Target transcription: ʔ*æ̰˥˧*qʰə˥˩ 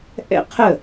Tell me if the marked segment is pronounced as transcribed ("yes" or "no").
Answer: no